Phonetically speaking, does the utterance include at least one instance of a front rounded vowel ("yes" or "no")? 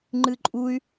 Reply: yes